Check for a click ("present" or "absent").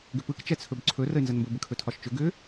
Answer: present